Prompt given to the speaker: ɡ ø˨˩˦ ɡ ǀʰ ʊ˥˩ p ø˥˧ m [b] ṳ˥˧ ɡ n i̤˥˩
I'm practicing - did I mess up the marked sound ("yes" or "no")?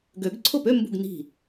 no